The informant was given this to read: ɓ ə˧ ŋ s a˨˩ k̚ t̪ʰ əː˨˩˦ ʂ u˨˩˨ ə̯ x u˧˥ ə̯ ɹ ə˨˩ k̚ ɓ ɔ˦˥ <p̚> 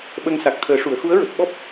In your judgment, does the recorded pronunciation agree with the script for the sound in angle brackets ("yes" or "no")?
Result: yes